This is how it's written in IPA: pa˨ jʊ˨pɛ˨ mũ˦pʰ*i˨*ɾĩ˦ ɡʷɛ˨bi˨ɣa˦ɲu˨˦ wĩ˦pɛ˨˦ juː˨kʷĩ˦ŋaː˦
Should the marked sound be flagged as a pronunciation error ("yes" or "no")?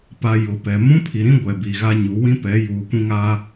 no